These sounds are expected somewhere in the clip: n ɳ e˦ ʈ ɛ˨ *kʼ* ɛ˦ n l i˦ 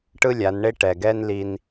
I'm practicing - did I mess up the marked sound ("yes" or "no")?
yes